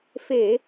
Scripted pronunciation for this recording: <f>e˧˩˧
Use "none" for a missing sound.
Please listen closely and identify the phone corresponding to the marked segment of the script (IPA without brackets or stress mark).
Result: f